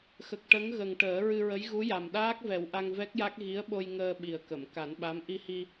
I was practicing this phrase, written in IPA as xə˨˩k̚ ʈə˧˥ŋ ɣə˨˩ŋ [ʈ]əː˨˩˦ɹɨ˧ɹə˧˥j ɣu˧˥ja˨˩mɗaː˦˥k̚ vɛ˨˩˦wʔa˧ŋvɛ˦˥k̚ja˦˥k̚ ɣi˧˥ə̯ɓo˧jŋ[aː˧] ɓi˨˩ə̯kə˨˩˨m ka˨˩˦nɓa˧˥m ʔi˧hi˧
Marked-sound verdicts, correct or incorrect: correct, incorrect

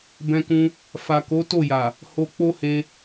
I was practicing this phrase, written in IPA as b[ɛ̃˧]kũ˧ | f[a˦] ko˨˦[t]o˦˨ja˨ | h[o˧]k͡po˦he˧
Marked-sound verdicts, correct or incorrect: correct, incorrect, correct, correct

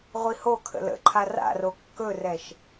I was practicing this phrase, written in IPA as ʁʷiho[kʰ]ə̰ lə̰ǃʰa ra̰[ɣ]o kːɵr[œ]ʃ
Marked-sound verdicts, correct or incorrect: correct, incorrect, incorrect

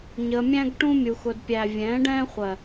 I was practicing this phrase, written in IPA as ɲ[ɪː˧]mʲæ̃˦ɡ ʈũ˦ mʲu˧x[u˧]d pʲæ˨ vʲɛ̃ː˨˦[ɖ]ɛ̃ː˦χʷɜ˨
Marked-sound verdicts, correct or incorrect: incorrect, incorrect, correct

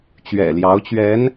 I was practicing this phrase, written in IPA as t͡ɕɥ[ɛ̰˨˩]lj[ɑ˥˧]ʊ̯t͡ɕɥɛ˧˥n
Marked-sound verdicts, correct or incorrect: correct, incorrect

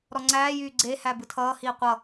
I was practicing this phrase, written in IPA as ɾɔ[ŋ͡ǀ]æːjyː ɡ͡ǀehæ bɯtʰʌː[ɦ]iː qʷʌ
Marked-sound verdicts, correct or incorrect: correct, incorrect

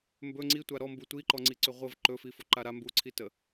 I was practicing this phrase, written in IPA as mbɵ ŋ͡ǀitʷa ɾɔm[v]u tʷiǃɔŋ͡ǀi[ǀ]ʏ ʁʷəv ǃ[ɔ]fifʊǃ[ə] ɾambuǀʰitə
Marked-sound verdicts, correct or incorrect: incorrect, correct, incorrect, incorrect

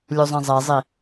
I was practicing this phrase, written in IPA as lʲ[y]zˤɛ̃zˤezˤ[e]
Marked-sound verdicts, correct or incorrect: incorrect, incorrect

